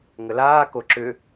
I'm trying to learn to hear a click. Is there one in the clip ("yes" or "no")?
yes